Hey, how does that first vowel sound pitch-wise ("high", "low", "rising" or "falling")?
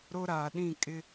high